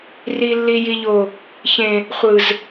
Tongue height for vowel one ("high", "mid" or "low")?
high